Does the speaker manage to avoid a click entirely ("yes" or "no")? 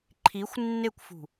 no